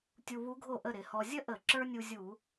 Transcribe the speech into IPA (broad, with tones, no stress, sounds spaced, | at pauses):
tʲ u˧ β u˧˥ ɡʱ o˥˩ ʔ ə˥˩ ɾ ɪ˧˩˧ h ɔ˧ zʲ ə˥ ʔ ə˧˩˧ ǁ ə˞˥ nʲ u˧ zʲ u˧˩˧